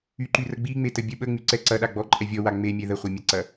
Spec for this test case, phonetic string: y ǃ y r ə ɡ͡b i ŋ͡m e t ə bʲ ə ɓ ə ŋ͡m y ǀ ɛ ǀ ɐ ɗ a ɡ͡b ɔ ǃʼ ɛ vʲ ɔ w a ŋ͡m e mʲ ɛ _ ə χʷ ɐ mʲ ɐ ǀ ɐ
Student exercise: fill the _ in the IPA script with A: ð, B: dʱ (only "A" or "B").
A